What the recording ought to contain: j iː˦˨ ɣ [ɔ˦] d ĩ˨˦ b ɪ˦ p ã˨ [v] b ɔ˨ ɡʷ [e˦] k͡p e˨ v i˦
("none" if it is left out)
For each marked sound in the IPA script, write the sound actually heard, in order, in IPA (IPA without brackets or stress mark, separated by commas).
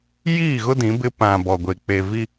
ʊ˦, none, e˨